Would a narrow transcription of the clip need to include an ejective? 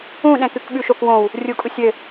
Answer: yes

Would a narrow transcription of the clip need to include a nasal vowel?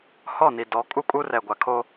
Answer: no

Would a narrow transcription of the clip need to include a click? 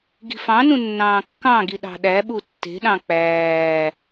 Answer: no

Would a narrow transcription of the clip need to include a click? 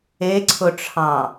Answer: yes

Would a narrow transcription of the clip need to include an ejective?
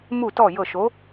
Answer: no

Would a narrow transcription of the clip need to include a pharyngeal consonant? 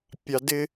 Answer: no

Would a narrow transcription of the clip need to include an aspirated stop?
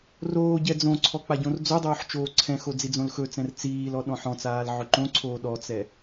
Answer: yes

